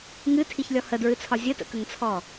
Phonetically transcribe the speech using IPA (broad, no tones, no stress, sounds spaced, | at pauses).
ŋ ɨ tʰ i ç lʲ ɔ h ə d ɹ ɨ t͡sʰ ɒ zʲ ə t ə̰ k ə ŋ t͡sʰ ɔ